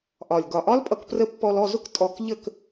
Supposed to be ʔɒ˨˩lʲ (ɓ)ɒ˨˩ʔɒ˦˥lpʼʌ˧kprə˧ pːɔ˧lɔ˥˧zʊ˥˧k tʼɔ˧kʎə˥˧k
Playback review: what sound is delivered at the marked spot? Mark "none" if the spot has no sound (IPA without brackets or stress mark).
ɡ